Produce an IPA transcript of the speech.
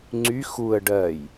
ŋ͡ǀy xuə̯ ɖɜj

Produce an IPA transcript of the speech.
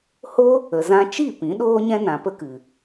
ho˦ | ə˨zã˧t͡ʃi˦˨ pĩ˨˦ɗoː˦ɲɛ̃˦ nã˧pə˦kɨ˨

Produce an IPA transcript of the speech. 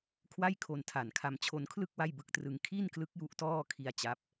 kʰwa˥˩jkʰo˧ntʰa˨˩nkʰa˧m t͡ɕʰo˧nkʰlɯ˥˩k̚ wa˥˩jbɯ˦˥k̚trɯ˧ŋ kʰi˥˩nklɯ˦˥k̚ju˦˥ʔ tɔː˥˩kʰi˧a̯ t͡ɕa˦˥p̚

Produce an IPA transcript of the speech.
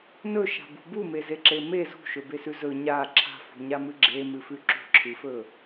nɵʃa̤bṳ bumezeǁe me zṳʃɵbesʉ zɵ ɲa ǁʰa̤fṳɲamɨ ɡ͡ǁemɨfʉ ǁṳǁʰɨfɵ

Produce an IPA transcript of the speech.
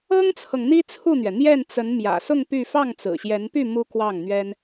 ɤ˥ŋt͡sʰɤ˨ŋ n̪i˥t͡sʰu˥˩n̪ɥɛ˩ n̪jɛ˥˩nt͡sə˧˥n mjä̰˨˩sʊ˥˧ŋ py˥˧ fɑ˥˩ŋt͡sɹ̩˨˩ɕjɛ˧˥npy˥˩ mu˥kwɑ˥˩ŋn̪ɥɛ˥n

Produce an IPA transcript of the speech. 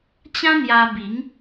t͡ɕã˦n̪ja˧bi˨˦ŋ

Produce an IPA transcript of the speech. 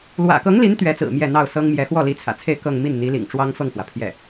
lwä̰˨˩kɤ˧˥ŋli˧˥n t̪ɥɛ˧˥t͡sɹ̩˨˩ mjɛ˥˧ n̪ɑ˥˩ʊ̯sɤ˥ŋmjɛ˧˥ xwɔ˥˩li˧˥t͡sʰä̰˨˩t͡sʰe˥˧ɪ̯ kɤ˥˧ŋmi˥˩nn̪i˧˥ lḭ˨˩ŋʈ͡ʂwɑ˥ŋfɤ˥˩ŋfwä˩ pʰjɛ˥˩

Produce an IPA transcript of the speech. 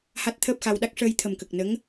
ha˦˥t̚t̪ʰəː˦˥p̚xa˧wɗa˦˥k̚ ʂəː˧jt̪ʰə˨˩mkə˨˩k̚ nə˧˥ŋ

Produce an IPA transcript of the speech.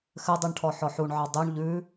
xɘdˤʉɳʈʰɔ ħɔħuɳʕɑ dˤʉɳ ʎʉ

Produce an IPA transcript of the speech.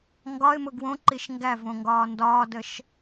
ŋɡɒɪ̯mʊ ɡwõǃiʃ ŋɡævõŋɡɒː ndɒːdəʃ

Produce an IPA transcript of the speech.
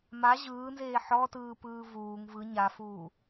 ma ʑɯːnzeː ħɔtɯːpɯː vuːŋ vɯ ɲafuː

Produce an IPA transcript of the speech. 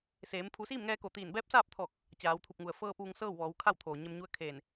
seː˩˧m pʰu˩˧siː˥˨mŋɛː˧ ko˧˩t̪iː˧˩n bɛː˧˥p̚saː˥˨p̚t̪ʰɔː˧˩k̚ | t͡ɕaː˩˧wt̪ʰu˧˩p̚ŋu˩ə̯ fɤː˧p̚ ʋu˧ŋsɤː˥˨wʋɔː˩˧w kʰa˥˨wt̪ʰoː˩ ɲe˧mɲu˧˥ə̯kʰeː˧˩n

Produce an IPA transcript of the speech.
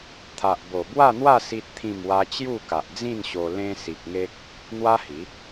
t̪ʰa˨ʔbo˨˩bwa˥˧n̪wa˥˧ si˦t̚t̪ʰĩ˥˧mwa˦ t͡ɕju˥˧ka˨ʔd͡zĩ˥˧nɕo˧ lẽ˧ si˨k̚ŋe˦k̚ | n̪wa˦hi˨˦

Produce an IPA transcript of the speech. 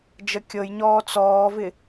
d͡ʒəkʲɤjɲɔː t͡sɔːvɪ

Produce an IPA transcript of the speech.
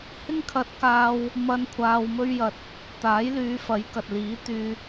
hɪ˥ŋkʰɐ˧t̚kaː˧w | mɐ˧n kʷʰaː˧wmɵ˥ɥjɐ˧t̚ | t̪aː˨˥jlyː˨˧fɐ˨˥j kɐ˨t̚liː˨˥t̪yː˧

